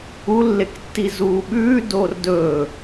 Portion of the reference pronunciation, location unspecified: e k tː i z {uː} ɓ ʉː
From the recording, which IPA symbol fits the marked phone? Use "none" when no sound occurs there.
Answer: uː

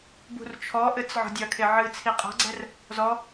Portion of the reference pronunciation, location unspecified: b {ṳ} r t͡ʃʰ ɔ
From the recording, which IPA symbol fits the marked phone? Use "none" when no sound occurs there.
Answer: ṳ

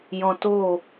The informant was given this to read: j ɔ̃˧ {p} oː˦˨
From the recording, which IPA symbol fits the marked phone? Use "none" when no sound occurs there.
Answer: t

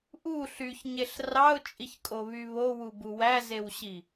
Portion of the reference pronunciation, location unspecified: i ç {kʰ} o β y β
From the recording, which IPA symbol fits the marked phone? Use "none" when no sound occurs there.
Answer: kʼ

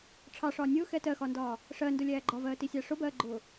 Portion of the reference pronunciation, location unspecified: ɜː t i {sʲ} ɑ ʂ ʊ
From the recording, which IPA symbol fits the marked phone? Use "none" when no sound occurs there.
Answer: sʲ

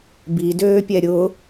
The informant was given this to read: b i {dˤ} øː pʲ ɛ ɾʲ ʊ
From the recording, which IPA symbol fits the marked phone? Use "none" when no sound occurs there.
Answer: d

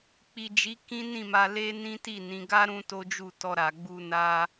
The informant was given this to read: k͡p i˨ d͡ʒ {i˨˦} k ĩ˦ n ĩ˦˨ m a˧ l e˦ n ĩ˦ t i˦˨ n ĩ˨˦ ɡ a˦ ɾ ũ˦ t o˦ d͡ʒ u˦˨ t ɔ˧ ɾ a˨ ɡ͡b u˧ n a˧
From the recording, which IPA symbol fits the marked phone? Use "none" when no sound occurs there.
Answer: i˨˦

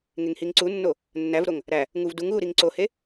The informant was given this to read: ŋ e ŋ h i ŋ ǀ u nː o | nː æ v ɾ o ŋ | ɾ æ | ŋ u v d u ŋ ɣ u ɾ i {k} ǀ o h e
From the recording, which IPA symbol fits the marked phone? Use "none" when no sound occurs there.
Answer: ŋ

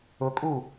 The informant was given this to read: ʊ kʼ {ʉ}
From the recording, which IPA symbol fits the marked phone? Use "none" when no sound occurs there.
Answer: u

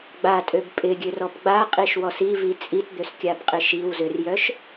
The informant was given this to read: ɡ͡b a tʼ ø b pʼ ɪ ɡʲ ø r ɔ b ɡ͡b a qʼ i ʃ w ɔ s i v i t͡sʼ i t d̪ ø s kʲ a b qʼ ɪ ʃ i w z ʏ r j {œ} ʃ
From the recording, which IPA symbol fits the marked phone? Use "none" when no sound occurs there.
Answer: œ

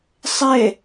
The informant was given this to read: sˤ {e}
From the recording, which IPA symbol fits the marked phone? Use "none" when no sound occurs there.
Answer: e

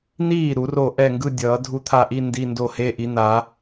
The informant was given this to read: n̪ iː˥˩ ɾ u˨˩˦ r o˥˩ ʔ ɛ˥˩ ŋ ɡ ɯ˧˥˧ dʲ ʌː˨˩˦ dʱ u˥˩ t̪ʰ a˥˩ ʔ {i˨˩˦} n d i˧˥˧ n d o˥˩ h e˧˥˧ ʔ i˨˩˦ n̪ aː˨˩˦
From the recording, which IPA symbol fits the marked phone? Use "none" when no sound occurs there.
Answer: i˧˥˧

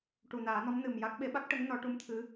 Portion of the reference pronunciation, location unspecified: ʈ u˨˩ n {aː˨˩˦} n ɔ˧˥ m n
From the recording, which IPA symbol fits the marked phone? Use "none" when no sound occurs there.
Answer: aː˨˩˦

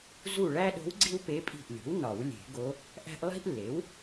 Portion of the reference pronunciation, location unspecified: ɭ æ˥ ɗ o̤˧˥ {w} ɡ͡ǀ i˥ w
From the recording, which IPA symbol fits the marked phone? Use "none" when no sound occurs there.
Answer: w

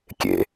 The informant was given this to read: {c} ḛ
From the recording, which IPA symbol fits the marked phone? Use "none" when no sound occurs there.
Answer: kʲ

